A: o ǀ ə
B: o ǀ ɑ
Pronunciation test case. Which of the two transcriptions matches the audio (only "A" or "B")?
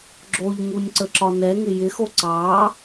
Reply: B